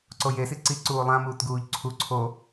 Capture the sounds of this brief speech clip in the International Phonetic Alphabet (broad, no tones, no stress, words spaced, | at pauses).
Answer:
ǀoje siǀi ǀuːlˠãmuːt ɡuːʎǀʰu ǀʰo